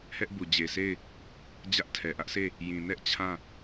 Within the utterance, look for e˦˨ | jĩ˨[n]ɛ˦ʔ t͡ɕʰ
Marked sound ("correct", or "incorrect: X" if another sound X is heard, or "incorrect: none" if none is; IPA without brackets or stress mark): correct